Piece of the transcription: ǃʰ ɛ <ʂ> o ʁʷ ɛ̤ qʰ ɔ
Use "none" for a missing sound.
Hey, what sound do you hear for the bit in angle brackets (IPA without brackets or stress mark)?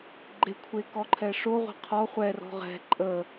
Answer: ʂ